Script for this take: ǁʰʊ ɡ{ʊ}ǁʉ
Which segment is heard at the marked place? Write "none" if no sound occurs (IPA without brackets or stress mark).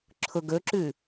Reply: ɵ